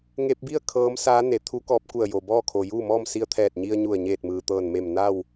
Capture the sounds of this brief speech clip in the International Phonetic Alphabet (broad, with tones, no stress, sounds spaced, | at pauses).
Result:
ŋ e˧ p̚ b i˥˨ ə̯ kʰ ɤː˧˥ m s aː˧˥ n e˩ t̪ʰ u˧˥ k ɔː˧ p̚ k u˧˩ ə̯ j o˩ b ɔː˥˨ kʰ o˩ j uː˥˨ m ɔː˥˨ m s i˧ ə̯ t̪ʰ ɛː˧˩ t̚ ɲ i˧ ə̯ ɲ u˧˩ ə̯ ɲ eː˧˩ t̚ m ɯː˩ t̪ ɤː˧˩ n m e˧˩ m n a˥˨ w